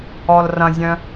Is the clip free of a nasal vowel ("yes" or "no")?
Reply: no